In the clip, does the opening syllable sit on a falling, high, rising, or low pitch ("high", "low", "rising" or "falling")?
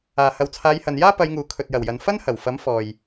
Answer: low